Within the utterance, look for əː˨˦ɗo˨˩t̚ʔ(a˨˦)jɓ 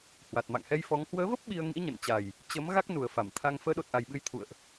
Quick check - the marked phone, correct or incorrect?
incorrect